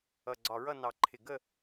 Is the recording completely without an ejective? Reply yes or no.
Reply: yes